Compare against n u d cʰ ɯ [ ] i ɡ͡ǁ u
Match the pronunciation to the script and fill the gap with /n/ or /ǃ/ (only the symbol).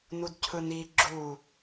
n